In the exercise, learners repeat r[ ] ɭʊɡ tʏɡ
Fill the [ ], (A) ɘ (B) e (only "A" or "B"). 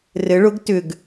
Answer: A